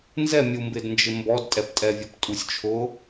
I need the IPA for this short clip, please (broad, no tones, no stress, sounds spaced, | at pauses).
n z ɛ mʲ u m b ɪ d n d͡ʒ ɪ m b ɔ d tʼ ɛ p tʼ ɛ vʲ ɔ p tʼ u sʲ t͡ʃʰ ʊ